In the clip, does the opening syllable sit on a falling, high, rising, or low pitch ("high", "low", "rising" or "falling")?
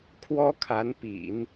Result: high